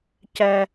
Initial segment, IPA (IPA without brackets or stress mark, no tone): c